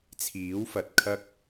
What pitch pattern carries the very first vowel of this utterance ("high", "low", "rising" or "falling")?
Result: rising